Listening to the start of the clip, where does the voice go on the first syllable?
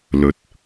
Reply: rising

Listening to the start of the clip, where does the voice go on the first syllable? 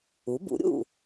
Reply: rising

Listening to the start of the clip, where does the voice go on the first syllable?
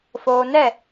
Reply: low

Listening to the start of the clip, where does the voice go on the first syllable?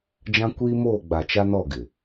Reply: high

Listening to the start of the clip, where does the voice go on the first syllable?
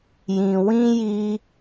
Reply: low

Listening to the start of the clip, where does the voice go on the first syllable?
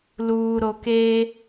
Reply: low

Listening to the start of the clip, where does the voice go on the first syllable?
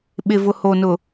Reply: low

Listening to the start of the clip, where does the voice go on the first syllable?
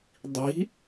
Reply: rising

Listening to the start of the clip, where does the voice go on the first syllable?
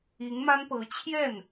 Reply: rising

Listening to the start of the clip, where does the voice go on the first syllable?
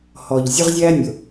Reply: low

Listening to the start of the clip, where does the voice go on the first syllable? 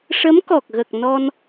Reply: rising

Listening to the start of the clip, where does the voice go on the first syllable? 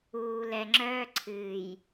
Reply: low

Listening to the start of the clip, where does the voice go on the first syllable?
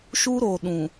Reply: high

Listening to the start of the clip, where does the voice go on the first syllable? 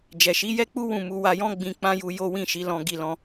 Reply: low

